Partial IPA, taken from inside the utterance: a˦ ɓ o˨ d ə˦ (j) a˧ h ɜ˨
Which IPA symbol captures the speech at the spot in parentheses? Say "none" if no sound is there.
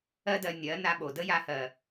j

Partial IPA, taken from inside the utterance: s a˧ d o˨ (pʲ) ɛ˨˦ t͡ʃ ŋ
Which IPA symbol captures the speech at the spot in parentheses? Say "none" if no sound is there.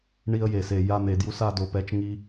p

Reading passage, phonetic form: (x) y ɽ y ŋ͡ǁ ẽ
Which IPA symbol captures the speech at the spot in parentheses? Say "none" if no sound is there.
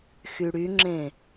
x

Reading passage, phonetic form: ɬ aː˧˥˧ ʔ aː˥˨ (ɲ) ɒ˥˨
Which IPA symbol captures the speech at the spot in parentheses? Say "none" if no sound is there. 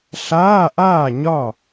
ɲ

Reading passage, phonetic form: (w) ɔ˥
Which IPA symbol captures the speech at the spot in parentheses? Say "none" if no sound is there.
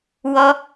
w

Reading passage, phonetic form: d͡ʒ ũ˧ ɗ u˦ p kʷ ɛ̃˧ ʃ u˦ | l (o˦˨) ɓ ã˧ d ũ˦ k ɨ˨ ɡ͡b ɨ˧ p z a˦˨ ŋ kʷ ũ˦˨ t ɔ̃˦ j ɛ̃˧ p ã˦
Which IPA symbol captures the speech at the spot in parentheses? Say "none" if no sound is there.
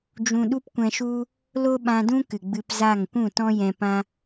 o˦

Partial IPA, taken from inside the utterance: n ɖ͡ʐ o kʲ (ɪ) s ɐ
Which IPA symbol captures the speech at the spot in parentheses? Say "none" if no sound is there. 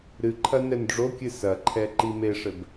ɨ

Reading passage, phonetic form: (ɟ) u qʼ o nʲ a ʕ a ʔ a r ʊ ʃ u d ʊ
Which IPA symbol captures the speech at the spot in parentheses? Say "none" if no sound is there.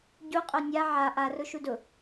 ɟ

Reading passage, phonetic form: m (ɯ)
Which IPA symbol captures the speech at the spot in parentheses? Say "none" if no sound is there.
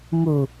u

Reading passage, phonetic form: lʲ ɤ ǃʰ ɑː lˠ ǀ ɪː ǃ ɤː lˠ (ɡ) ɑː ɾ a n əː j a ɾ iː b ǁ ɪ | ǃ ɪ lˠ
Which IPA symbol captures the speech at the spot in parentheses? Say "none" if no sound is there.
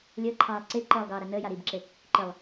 ɡ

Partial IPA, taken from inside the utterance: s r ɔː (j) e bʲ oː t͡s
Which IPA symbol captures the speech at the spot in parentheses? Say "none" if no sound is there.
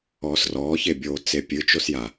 ç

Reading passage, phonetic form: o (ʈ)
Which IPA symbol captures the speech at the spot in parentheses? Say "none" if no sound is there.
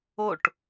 ʈ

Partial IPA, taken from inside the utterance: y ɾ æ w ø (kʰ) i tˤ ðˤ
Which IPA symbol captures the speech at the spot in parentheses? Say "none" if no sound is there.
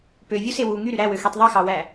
x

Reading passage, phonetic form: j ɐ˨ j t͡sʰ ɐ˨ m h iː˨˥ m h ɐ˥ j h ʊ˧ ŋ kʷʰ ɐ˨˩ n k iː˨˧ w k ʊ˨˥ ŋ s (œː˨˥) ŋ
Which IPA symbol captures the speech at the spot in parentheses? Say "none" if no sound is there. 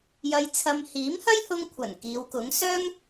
œː˥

